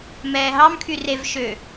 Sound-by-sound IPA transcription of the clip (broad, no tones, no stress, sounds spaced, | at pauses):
m ɛː ɦ ɑ m kʰ y r e v ʃ ø